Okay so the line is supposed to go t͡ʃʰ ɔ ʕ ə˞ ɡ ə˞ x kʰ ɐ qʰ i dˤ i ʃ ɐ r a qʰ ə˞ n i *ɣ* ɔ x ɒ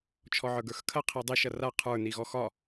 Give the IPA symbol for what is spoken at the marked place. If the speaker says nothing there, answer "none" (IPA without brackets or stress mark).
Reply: ɣ